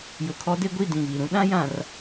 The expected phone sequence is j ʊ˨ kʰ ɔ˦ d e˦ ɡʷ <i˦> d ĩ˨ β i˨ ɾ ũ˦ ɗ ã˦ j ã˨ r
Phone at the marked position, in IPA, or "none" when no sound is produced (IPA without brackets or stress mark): i˦˨